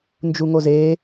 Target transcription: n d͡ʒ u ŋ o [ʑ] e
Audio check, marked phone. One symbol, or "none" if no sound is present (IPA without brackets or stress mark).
z